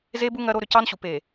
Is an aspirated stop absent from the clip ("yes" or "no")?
yes